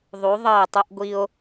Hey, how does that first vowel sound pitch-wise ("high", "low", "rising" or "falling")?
rising